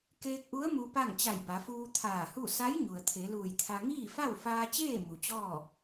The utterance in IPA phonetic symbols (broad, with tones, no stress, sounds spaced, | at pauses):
k eː˧ k̚ ʔ u˧˥ ə̯ m u˧ p a˥˨ ŋ t͡ɕ a˧˩ j b a˩˧ f uː˧ t̪ʰ aː˧˩ h u˥˨ s a˧˥ j ɲ u˩ ə̯ t̪ʰ e˩˧ l uː˧˩ j t̪ʰ a˧ ŋ iː˥˨ f a˥˨ w f aː˧ t͡ɕ eː˥˨ m u˩ t͡ɕ ɔː˥˨